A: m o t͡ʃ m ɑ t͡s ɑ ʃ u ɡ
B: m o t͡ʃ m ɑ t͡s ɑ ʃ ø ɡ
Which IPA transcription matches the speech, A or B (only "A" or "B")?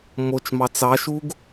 A